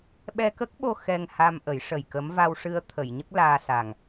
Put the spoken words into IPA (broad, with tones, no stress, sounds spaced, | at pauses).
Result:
ɓ ɛ˧ k ə˦˥ k̚ ɓ o˧ x ɛ˧ ŋ h a˧ m ʔ ə˨˩˦ j ʂ ə˨˩ j k ə˧˥ m v a˧ w ʂ ɨ˧ ə̯ t̪ʰ ə˨˩˨ j ɲ ə˦˥ k̚ l aː˧ s a˨˩ ŋ